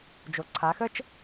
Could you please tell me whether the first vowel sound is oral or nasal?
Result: oral